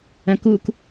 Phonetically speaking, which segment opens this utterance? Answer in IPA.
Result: ɐ̃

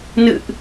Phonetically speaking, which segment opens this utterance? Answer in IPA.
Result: n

